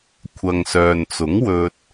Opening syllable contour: low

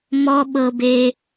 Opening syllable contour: low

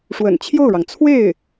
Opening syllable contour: low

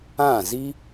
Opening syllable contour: falling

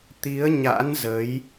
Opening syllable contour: rising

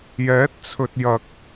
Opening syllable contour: rising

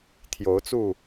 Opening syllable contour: rising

